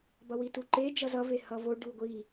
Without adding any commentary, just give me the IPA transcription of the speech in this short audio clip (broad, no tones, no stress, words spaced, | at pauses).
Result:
bʌwituǃe d͡ʒʌzʌ vehʌvo ɖuɡʷi